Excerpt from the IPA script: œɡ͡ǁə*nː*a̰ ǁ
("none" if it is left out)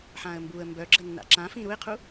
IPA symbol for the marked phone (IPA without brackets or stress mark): nː